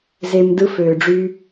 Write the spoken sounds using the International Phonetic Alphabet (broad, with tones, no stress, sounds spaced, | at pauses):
z e˧ m d ɯ˧ f øː˨ ɖ͡ʐ y˧